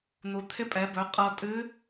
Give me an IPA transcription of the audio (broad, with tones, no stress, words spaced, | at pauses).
n̪u˩t̪ʰɪ˧˥pʼɛ˩˧bɵ˩˧ qʼɤ˧ tʼɨ˧˥